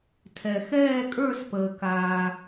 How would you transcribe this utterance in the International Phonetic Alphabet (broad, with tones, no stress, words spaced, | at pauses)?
tʰɛ˩ xɛː˦˨kʼə˞˦˨spəː˩ kaː˩